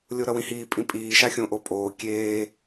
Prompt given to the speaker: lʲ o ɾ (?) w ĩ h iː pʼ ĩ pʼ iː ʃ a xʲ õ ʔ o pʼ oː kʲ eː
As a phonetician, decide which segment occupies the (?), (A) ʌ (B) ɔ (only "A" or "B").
A